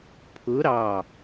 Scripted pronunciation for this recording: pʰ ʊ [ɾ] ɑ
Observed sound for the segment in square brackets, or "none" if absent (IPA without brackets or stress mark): ɾ